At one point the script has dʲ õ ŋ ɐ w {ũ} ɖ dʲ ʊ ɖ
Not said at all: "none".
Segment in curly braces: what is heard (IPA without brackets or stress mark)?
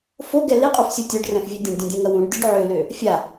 ũ